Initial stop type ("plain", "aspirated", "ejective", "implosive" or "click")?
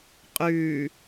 ejective